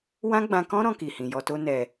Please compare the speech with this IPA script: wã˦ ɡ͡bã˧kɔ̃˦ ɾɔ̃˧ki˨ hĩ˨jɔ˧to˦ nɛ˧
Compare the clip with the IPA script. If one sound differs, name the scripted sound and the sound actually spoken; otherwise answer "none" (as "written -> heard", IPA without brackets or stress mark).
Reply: none